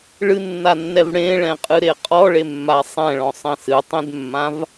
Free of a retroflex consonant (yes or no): no